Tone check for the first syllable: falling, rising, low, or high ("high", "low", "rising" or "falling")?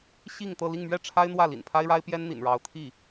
falling